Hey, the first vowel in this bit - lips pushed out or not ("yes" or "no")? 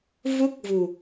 yes